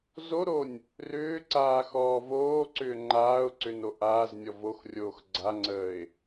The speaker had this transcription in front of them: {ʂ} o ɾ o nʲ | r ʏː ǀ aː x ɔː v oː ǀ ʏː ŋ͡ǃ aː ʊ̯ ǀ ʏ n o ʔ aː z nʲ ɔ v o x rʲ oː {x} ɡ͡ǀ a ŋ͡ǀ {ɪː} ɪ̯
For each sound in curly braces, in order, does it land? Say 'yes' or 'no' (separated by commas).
no, yes, no